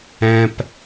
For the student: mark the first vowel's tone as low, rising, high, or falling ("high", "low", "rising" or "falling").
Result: low